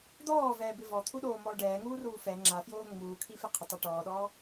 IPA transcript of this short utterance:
d̪ ɔː v ɛː b ɪ v ɔ t̪ʰ u ɗ oː m ɔː ɖ ɛː ŋ uː r uː f ɛ ŋ͡ǁ a f j oː ŋ͡m uː kʰ i f ɪ qʰ ɪ tˤ a ʈ ɔː ɗ ɔː

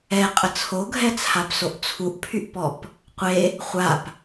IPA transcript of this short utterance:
ɛ qʼ ə t͡sʰ o ɡʱ ɛ t͡sʰ a p s o ʔ t͡sʰ u ʔ pʰ y ʔ p ɔ p | qʷ e | χʷ a p

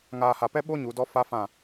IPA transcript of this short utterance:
ŋ aː˨ h a˨ p ɛ˧ ɓ o˧ ɲ u˨˦ d ɔ˦ f a˦ f ã˦˨

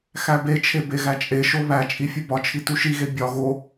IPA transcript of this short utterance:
x æ b e t͡ʃʰ e b e ɣ æ t͡ʃʼ e ʃ o β æ t͡ʃʼ i fʲ u b ɒ t͡ʃʰ i t u ʃ i ɣ e bʲ ɒ ɣ o

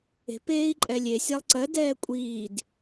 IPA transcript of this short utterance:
e̤ p eː i̯ ǃʼ ɛ lʲ e sʲ a lˠ ǀ ɜ d ɛː kʷʼ iː d

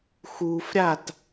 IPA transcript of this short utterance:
x u f ɾʲ a t

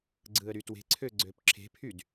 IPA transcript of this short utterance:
ɡ͡ǀ ɯ ə̯ ɾ y t w e̤ ǀʰ ø ɡ͡ǀ ø p ǁʰ e̤ pʰ y d

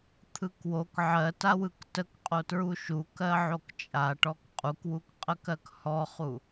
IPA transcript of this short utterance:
t̪ʰ ɯ k w o k ʕ ɜ t a w ɯ k t ə k qʼ o t ɹ u ʃ u k ɜ ʕ o k t͡ʃʼ a ʈ ɔ k qʼ u k w u k qʼ ə k ɜ k h ɔ χ u

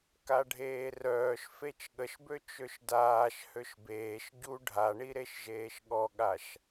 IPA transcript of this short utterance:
k a ɖʱ eː r œː ʃ f e t͡ʃ ɠ ə ʃ b ø t͡ʃ ø ʃ d aː ʃ h ø ʃ b eː ʃ ɟ u ɖʱ a ɳ i ɾ e ʃ ʒ eː ʃ ɠ ɔ ɠ a ʃ

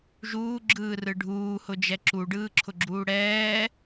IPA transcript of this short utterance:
ʒ uː ɡ͡ǁ ɯː r ɯ ɖʱ uː h ʊ d͡ʒ ɛ ǁ u ɖ ɯː ǁʰ ʊ ɡ͡ǁ uː ɽ ɛː

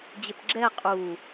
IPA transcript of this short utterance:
d͡ʑ ɪ p ɡ͡ǁ ɛ qʼ u

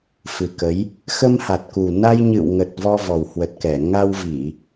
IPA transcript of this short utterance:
f ɨ˨˩ k ə˨˦ j | x ə˧ m h a˨˩ t̚ k u˨˩ n a˧ j ɲ ɨ̰˧˨ w ŋ ə˨˩ t̚ v ɔ˧ v ɔ˨˩ w h w ə˨˩ t̚ k ɛ˧˩ ŋ a˧ w v i˧˩˨

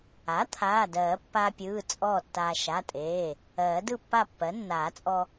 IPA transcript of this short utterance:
a˩˥ t̪ʰ aː˩˧˩ d ɜː˨˩˦ pː aː˧ pʲ ɯː˩˧˩ t͡sʼ ɔː˥˨ tː aː˧ ʃ a˩˧˩ tʼ eː˩˧˩ | ɜː˨˩˦ d ɯ˥˨ pː a˥˨ pː ɜ˩˥ nː aː˨˩˦ t͡sʼ ɔ˧

